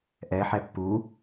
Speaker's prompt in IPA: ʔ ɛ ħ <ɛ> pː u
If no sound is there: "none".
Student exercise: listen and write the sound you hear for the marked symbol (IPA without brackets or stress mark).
ɛ